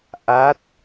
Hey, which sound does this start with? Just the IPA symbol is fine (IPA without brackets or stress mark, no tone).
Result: ʔ